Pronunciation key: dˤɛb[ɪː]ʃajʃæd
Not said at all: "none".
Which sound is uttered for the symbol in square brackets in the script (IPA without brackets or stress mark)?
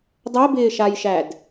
ɪː